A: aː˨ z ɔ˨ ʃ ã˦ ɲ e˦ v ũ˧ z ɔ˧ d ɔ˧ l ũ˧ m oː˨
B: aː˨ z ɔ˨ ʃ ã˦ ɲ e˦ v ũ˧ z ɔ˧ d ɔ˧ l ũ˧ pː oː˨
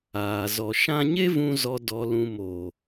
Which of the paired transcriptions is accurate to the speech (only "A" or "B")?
A